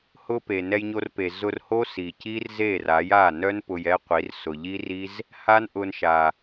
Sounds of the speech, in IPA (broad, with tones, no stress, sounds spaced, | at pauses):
h ʊ˦ p e˨ n ɛ˧ j ɲ o˧ r p e˨ z ʊ˧ r h o˦ s i˨ c i˦ r z e˦˨ r a˨˦ j a˦˨ n œ˦ n p ʊ˧ j ɛ˦ qʷ i˨˦ r s ʊ˨ ʎ i˦ r i˦ z | h a˦ n ʔ ʊ˧ n ʃ a˨